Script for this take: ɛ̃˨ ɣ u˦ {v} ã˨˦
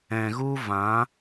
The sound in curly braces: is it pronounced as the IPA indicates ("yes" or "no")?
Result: yes